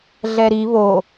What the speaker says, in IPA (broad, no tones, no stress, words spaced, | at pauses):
ɮɛɾi βo